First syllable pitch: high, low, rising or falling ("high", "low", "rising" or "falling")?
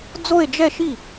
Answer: falling